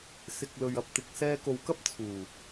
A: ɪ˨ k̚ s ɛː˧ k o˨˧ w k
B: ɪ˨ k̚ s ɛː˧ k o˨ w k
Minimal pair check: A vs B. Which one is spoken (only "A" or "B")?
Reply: B